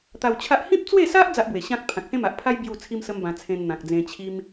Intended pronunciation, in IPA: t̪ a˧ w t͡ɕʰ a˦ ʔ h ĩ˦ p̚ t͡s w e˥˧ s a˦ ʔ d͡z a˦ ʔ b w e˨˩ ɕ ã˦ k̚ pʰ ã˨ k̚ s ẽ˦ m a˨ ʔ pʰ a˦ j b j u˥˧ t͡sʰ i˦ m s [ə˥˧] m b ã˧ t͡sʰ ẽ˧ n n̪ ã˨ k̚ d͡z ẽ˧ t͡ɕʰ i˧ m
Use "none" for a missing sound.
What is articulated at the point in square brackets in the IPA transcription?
ə˦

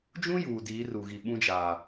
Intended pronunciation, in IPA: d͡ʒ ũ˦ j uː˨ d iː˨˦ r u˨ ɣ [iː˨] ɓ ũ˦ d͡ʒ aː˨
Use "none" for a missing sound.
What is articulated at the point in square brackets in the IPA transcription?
i˨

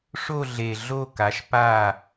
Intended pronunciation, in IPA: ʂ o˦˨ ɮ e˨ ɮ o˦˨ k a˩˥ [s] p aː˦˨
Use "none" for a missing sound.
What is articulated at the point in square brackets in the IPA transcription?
ʃ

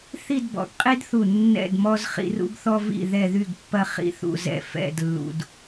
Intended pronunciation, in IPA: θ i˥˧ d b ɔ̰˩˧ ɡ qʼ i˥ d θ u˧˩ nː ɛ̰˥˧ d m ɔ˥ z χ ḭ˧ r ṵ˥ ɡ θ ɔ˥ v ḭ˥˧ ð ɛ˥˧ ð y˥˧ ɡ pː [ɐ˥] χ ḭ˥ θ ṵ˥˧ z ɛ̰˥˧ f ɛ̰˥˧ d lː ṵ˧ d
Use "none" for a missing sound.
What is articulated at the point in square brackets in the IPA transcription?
ɐ˥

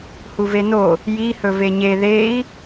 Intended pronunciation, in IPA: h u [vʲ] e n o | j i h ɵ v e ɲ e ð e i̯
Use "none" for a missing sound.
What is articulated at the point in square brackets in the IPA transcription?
v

